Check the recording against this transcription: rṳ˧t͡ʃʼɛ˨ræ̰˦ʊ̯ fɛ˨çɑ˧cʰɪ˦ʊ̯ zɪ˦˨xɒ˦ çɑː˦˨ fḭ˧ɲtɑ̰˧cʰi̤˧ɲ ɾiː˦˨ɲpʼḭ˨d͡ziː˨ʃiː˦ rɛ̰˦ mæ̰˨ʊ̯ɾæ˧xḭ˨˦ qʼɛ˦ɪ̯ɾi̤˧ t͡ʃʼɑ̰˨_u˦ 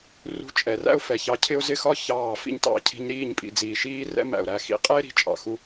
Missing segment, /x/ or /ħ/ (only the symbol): x